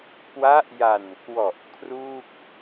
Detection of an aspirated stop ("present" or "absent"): present